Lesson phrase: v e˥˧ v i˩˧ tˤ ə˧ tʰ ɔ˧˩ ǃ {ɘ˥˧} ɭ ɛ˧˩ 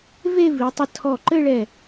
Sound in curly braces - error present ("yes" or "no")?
no